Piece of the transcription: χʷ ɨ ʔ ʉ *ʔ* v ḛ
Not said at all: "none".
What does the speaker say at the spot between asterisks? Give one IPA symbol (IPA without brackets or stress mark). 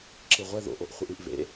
ʔ